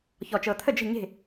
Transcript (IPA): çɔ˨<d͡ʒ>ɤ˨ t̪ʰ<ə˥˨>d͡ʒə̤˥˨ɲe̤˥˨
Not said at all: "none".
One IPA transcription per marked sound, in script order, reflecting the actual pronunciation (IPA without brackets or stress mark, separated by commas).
t͡ʃ, ə˥˨